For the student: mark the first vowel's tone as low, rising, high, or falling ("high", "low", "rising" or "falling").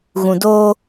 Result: low